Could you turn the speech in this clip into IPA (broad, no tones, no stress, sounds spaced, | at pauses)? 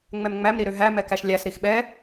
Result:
ŋ͡m ɛ m ŋ͡m æ m ɾ i ɾ ø ɦ æ m ɛ k æ ʃ lʲ æ s ɾ i x ɓ ɛ